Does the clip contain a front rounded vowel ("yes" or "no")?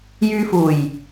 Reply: yes